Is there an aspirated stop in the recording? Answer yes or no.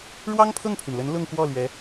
yes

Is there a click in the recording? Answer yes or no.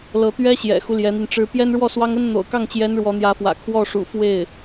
no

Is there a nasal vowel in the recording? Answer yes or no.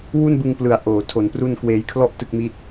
no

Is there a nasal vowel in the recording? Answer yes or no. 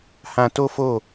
yes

